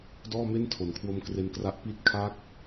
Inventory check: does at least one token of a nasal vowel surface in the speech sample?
no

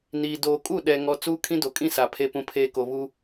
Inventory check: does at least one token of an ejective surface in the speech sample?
yes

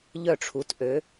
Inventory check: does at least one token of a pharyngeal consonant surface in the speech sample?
no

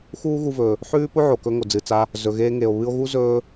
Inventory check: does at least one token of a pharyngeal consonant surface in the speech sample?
yes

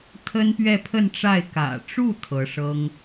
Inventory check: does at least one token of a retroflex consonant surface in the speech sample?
yes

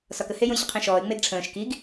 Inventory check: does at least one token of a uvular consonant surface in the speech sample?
yes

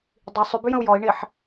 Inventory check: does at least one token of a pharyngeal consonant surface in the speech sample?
yes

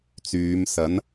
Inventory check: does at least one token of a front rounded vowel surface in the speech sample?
yes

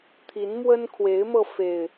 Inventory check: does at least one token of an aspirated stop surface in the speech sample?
yes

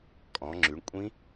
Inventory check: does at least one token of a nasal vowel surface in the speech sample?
yes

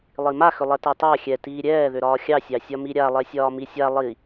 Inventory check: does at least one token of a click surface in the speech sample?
no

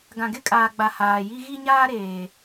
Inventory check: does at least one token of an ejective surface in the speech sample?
yes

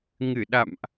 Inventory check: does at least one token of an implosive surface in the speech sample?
yes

